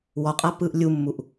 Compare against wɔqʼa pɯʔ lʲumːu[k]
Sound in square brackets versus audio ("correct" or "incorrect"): incorrect